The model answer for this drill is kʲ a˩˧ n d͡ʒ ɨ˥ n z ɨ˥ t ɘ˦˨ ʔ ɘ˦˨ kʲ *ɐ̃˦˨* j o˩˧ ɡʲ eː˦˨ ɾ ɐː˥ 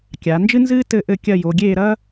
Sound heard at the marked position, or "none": ɐ˦˨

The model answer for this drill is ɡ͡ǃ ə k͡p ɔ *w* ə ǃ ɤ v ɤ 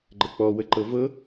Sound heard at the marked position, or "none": w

